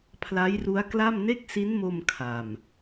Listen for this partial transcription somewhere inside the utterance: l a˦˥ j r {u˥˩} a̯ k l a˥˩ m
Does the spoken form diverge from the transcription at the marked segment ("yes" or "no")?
yes